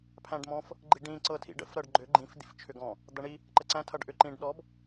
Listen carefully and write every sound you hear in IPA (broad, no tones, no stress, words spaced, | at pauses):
pʰæ̃ɖmɔ̃f | ɡ͡ǃiɖĩ ǀɤtʰḭɖə̰f ɾɤɖɡ͡ǃʏ ɡ͡ǃĩf d̪ḭft͡ʃʰʏɡɔ̃ | d̪ʌɳi | ǃəǀæ̃ tʰʌɖʔʏ ǃĩɖ ɗɔb